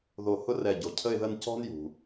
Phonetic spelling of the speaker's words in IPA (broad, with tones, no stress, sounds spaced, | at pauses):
ð o˧˩ h ʊ˥ r ɛ˧˩ ɟ o˩ cʰ ə˥˧ ɪ̯ ð ə˥˧ n c ɔ̤˥ n j ṳ˩